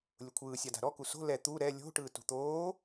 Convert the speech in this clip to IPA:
lʲ ʊ kʷʰ ɯː sʲ a d a̤ ɾ ɔ k u s o̤ l ɛ t̪ u ɾ ɛ lʲ o̤ ʈ ɯː t ṳ t̪ oː

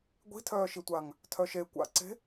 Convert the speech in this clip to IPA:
ɡʷ i̤ tʰ œː ʃ i tʷ a ŋ | tʰ œ ʃ e kʷ a̰ ǀ e̤

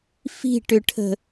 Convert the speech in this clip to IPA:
f i̤ ʈ ʏ ʈʰ ə̤

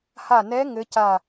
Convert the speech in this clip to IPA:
h a˧˩ n ɛ˧˥ ŋ ɘ˧˥ c a˧˩

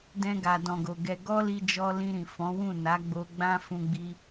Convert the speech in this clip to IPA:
d ɛ̃˧ ɡ a˨ d ɔ̃˨ ɡ o˨ ɡ ɛ˧ ɡ ɔ˦ l i˧ d͡ʒ ɔ˧ l ĩ˧ ɾ ĩ˨ f ɔ̃˨˦ w ũ˦˨ n a˨˦ ɡ͡b o˧ ɡ͡b ã˦ f ũ˧ ɡ͡b i˧

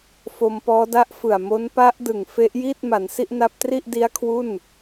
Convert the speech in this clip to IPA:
f o˧ m p ɔː˦˥ d a˦˥ ʔ f ɯ˨˩ a̯ m o˦˥ n p a˦˥ ʔ d ɯ˨˩ ŋ f e˦˥ ʔ j iː˥˩ t̚ m a˩˦ n s i˥˩ ʔ n a˦˥ p̚ t r i˥˩ ʔ d i˦˥ a̯ kʰ w u˥˩ n

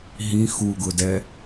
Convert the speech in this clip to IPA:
ɦ ĩ x u ɡ ʊ d ɛ

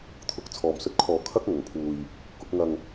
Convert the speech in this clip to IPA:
t̪ʰ ʊ˨˥ k̚ t͡sʰ ɔː˨ m s ɵ˧ t̚ kʰ ɔː˨ kʰ ɐ˥ k̚ ŋ ɐ˨˩ ŋ pʰ uː˨ j | k ʊ˨˥ k̚ ŋ ɐ˧ ŋ

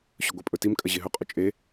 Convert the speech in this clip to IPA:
ɕ ɵ ɡʷ e pʼ ɵ t i m kʼ ɐ ʑ e ɦ ɵ qʼ ɵ t͡ʃʼ e

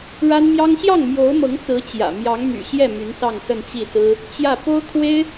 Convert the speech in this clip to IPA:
ɻ a˥ n m j ɑ˥ ŋ ɕ j ɑ˥˩ ŋ m j o˧˥ ʊ̯ m ɤ˧˥ ŋ t͡s ɹ̩˧˥ t͡ɕ j ä̰˨˩ m j ɑ˧˥ ŋ m y̰˨˩ ɕ j ɛ˥˩ m y˧˥ n s ɑ˥˧ ŋ s ə˥˧ n t͡ɕ i˥˩ s ɹ̩˥ | t͡ɕ j ä˥˩ p o˥ ʊ̯ kʰ w e˥ ɪ̯

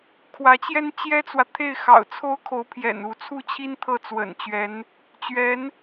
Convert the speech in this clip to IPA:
kʰ w ä˧˥ t͡ɕ j ɛ˥ n t͡ɕ j ɛ˥ t͡s w ä˨ t̪ʰ e˥˩ ɪ̯ x ɑ̰˨˩ ʊ̯ t͡sʰ o˥ ʊ̯ kʰ o˧˥ ʊ̯ pʰ j ɛ̰˨˩ n u˧˥ t͡sʰ u˥˩ t͡ɕʰ i˥ n t̪ʰ ɤ˥˩ t͡s w ə̰˨˩ n t͡ɕ ɥ ɛ˧˥ n | t͡ɕ ɥ ɛ˧˥ n

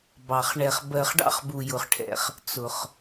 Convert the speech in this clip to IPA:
b ɑ˩ χ ɳ ɛ˩ χ b ɜ˩ χ ɖ ɑ̰˧ χ b u˩ j ʊ˩ χ ʈʰ ɛ̰˩ χ | t͡s ʊ˩ χ

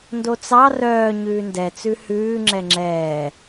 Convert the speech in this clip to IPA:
n d o t͡s ɑ r œː ɲ ʉː n d ɛ t͡s ʉ h ʉː ŋ͡ǁ ɛ ŋ͡ǁ ɛː

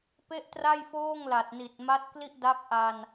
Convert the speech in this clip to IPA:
p e˥˩ ʔ t r a˥˩ j f oː˥˩ ŋ l a˨˩ t̚ n i˨˩ t̚ m a˦˥ t̚ k l i˥˩ ʔ d a˦˥ k̚ ʔ a˧ n

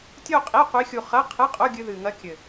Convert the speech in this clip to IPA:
tʲ o˥˧ qʼ i˧˥˧ qʷ i˧˥ xʲ u˧ χ ɐ˧˥˧ qʰ ɨ˧˥˧ qʼ o˧˥˧ ɡʲ ɨ˧ ð ɨ˨˩ ŋ ɐ˧˥ kʲ ɘ˨˩

